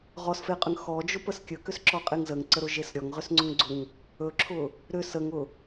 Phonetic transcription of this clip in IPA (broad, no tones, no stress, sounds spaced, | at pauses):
ʁ ɔ s f e qʼ ʏ ŋ x ɔ d͡ʒ ʊ p ə s kʲ ɵ k ʏ s ǁ ɔ qʼ e ŋ z ə ŋ ǀ ə ɾ ʊ ʒ e s ɾʲ ɔ ŋ ʁ ʏ s ŋ͡ǀ ʊ ŋ ɡ͡ǀ ʊ ŋ | ɵ ǁʰ ʊ | ɾ ʏ s ə ŋ ʊ